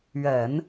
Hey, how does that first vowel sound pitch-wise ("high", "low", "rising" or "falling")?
low